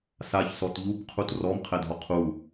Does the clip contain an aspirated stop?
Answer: yes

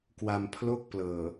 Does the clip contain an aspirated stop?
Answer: yes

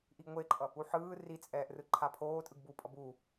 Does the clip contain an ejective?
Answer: yes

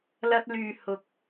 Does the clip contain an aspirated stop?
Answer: no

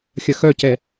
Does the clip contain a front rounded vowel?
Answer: yes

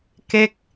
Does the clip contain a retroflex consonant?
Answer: no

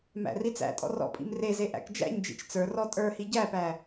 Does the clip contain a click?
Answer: no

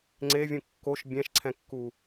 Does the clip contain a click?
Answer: yes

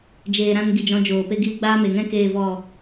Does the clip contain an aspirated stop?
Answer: no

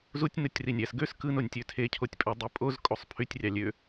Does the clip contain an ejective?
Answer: yes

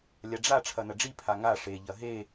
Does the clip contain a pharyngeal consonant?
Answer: no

